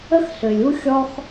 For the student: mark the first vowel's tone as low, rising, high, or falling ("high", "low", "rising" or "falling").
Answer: high